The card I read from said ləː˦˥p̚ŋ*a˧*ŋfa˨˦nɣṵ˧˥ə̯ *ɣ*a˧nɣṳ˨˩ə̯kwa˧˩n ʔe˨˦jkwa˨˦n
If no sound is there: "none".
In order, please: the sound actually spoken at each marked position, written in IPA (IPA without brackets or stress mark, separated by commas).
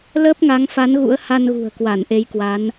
a˨˦, h